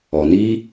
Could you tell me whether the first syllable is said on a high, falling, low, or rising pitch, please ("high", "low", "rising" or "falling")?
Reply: low